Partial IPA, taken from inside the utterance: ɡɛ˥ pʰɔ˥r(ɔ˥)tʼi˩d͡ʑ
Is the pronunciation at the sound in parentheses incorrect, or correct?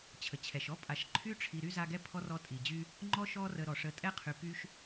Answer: incorrect